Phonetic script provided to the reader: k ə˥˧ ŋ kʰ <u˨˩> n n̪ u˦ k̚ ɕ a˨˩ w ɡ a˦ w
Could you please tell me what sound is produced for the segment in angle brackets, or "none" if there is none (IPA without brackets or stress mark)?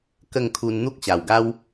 u˧